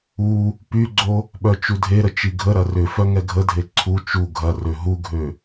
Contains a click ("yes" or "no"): yes